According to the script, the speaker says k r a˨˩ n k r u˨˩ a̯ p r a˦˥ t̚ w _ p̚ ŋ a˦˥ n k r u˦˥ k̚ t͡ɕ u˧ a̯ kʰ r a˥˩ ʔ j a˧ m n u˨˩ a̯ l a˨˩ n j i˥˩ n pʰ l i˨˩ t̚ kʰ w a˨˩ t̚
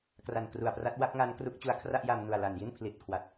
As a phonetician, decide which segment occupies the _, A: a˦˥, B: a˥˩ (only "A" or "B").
B